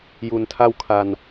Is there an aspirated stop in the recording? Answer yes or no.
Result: yes